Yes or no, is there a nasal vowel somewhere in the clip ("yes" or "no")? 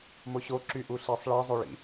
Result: no